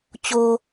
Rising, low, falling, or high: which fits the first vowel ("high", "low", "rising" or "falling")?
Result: low